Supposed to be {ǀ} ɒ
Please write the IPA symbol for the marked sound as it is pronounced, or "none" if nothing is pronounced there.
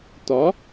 t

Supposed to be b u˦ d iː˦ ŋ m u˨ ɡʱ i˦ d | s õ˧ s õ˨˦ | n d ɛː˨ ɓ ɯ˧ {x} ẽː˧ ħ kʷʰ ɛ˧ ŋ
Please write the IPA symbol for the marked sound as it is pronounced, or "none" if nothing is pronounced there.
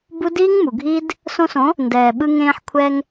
ŋ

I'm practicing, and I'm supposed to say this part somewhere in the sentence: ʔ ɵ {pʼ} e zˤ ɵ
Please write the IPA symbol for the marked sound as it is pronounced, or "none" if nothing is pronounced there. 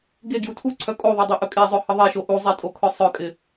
kʼ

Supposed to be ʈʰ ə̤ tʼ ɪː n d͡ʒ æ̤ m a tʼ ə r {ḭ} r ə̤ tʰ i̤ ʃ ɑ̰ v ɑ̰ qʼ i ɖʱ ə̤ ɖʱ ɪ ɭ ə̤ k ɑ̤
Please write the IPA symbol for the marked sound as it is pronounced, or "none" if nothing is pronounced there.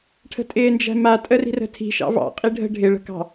i̤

